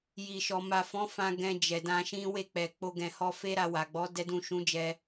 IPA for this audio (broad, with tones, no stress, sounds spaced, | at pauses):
j i˨ ʃ ɔ˨ m a˨ f ɔ̃˨˦ f ã˧ ɡ ɛ̃˧ d͡ʒ ɛ˨ d ã˧ ʃ ĩ˦ w e˦˨ k͡p ɛ˨ k͡p o˧ ɡ ɛ̃˨ h ɔ˧ f e˦ ɾ a˧ w a˨ ɡ͡b ɔ˨˦ d ɛ˦ d ũ˦˨ ʃ ũ˨˦ d͡ʒ ɛ˧